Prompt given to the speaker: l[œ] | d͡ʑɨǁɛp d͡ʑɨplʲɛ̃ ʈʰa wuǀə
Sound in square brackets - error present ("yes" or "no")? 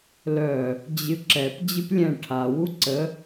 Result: no